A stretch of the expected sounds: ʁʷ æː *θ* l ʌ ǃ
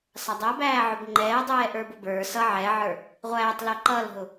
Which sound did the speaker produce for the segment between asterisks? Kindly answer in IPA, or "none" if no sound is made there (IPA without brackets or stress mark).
tˤ